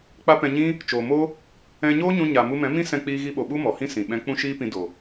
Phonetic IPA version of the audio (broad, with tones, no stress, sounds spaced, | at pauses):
k͡p a˦ p ɛ̃˧ ɲ ĩ˦ | t͡ʃ oː˨ m o˦ | ɛ̃˧ ɲ oː˦ ɲ ũ˧ ɲ a˨ m u˧ m ɛ̃˨˦ m ĩ˦ s ɛ̃˧ k͡p iː˧ ɣ i˧ ɓ o˨ ɓ u˦ m ɔ˨ h ĩ˦ s ĩ˨ ɓ ɛ̃˦ k͡p ũ˦ ʃ iː˦ p ĩ˧ d o˨